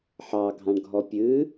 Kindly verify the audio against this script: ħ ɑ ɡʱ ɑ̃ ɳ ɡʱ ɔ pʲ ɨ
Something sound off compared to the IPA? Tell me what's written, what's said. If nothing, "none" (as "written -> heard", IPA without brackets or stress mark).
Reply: none